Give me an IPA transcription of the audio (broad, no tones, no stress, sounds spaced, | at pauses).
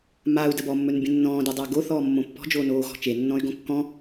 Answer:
m a u̯ d ə b ɔ mː ɵ n bʲ ə̃ nː ɔ̃ː d e dˤ əː ɡ o θ ɔː mː õ pː ɔ̤ d͡ʒ oː n oː ɣ ɔ̤ t͡ʃ e nː ɔ̃ y̯ ɡ õ kː ɔ̃